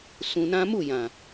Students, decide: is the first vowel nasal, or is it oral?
nasal